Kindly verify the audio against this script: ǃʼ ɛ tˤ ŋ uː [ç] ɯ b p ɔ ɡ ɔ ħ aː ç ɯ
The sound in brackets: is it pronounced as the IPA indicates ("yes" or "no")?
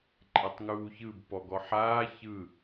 yes